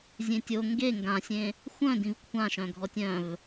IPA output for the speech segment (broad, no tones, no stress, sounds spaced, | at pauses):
zʲ ẽ tʲ o ŋ ɡ e ŋ ɡ ã sʲ ẽ | xʷ œ̃ d ĩ v kʷʰ ã ʃ œ̃ ɡʱ ɔ tʲ œ̃ v